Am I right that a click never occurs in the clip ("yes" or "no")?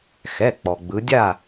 yes